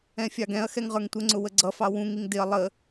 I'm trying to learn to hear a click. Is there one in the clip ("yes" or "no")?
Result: yes